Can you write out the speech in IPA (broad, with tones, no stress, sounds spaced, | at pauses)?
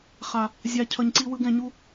χ a˨ | zʲ a˨ cʰ ʌ˨ ɲ ǀ i˧ w ɯ˧ ɡ ɛ̃˨ ɲ u˧